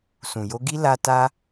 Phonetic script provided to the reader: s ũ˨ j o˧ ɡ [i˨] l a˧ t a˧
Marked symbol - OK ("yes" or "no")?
no